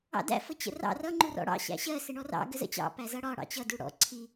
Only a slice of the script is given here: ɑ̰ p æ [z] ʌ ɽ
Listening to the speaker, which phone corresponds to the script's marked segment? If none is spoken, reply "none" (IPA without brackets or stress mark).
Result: z